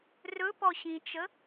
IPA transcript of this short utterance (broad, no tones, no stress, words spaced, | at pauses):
rɵ pɔɕĩt͡ʃə